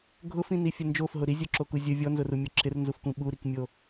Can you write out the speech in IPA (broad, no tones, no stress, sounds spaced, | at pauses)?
ɡʱ ʊ f ĩ n i fʲ ə n d͡ʒ o f ɦ ʊ ɾ i zʲ o ǁ o k u zʲ ə vʲ ɔ n z ʊ r u mʲ ɔ ǁʰ ɪ r n z u f kʷ ĩ ɓ u ɾ i k mʲ o